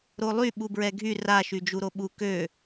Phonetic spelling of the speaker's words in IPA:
ɾolˠy ɓubɹɛɡʱy ra ʃyd͡ʒuɾoɓu kø

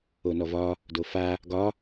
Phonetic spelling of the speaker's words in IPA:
onɔvɒ | dofa | ɡɒ

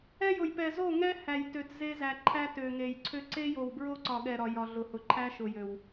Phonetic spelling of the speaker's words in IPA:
ɛ˦jʊ˨jpɛ˨ zo˦˨ŋɛ˦hæ˨jtø˨t ze˦ zæ˨ ǃʰæ˦tø˨ŋe˨jǀʰø˦ ǀe˦jo˨wbɹo˦ ǀɒ˨ɠɛ˨ɾɒ˨ jɒ˨ ɮʊ˨hʊ˨ǃʰæ˦ ʃʊ˨jø˨w

